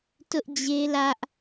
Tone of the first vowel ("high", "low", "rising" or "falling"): high